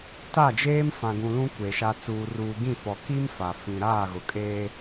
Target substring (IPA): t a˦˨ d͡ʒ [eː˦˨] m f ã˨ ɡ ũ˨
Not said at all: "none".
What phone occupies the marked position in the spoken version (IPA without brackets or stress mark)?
eː˦